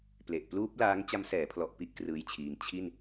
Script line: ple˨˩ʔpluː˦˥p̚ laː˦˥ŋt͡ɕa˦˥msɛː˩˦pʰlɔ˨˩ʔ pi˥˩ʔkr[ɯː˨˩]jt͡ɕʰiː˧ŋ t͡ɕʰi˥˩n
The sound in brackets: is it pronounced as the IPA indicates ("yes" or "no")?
no